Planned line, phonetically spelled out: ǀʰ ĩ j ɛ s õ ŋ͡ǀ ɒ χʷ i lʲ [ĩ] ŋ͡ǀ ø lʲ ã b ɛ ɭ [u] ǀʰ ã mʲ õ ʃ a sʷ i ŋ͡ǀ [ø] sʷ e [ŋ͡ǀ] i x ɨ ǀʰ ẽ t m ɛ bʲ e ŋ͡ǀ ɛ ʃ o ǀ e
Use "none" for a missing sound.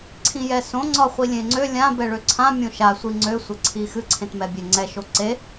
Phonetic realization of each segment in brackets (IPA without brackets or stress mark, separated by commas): ẽ, ø, ø, ǀʰ